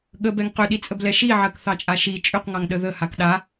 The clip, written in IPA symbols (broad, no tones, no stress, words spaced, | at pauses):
ɠəbɛŋ qʏɗit͡sʼəblɛ ʃiʕɜkθɑt͡ʃʼa ʃi t͡ʃʼʏqŋɑŋɗə ðəhak ɗa